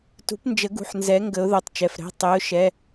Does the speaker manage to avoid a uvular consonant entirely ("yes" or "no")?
yes